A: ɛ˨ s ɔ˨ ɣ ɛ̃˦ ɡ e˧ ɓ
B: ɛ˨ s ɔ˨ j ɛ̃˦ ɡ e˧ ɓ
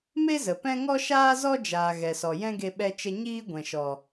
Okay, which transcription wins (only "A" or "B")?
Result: B